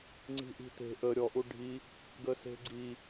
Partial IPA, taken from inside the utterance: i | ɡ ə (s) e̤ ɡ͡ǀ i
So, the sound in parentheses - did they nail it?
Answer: yes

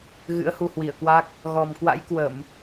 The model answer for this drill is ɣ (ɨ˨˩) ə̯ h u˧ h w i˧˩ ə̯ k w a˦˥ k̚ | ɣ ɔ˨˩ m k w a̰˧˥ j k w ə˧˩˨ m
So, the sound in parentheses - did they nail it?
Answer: no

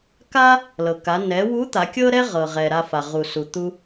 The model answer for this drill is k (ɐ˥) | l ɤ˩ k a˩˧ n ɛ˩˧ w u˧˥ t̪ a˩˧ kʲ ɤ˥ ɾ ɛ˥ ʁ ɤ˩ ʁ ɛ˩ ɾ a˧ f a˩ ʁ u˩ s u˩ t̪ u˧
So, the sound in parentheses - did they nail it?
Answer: no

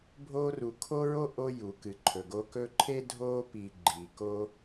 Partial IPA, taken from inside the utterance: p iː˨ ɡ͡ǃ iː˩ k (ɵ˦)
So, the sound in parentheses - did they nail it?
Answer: no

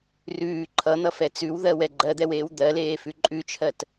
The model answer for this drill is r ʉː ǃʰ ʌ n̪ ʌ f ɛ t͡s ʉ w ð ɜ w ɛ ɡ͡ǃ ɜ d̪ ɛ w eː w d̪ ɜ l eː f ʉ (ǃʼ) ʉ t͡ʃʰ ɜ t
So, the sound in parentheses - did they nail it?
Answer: yes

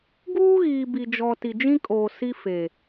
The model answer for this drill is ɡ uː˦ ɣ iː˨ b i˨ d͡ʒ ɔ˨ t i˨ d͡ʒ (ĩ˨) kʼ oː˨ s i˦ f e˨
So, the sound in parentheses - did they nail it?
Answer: no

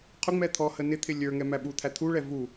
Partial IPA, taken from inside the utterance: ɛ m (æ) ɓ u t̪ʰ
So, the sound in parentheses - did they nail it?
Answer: yes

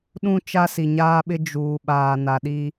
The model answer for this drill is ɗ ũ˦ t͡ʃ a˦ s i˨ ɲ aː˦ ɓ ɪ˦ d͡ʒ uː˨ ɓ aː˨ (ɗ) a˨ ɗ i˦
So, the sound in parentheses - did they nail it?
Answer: no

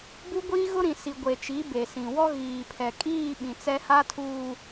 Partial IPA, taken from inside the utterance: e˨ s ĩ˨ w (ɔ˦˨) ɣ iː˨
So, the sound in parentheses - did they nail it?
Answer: no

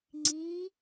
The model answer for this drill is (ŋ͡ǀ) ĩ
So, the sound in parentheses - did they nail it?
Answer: yes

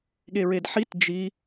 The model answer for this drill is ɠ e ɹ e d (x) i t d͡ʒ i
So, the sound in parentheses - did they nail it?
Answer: no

